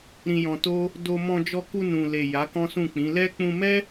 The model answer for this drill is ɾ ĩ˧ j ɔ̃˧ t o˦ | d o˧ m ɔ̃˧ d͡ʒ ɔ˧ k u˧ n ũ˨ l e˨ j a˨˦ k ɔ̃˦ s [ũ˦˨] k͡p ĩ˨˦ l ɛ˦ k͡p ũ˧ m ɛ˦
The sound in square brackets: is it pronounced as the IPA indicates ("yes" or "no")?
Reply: yes